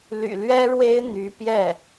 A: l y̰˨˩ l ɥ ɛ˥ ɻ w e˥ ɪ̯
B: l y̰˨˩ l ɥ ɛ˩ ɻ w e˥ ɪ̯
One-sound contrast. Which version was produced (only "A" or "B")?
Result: A